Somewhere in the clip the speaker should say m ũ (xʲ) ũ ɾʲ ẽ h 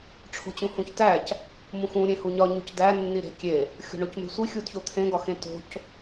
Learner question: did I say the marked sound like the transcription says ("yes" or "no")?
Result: no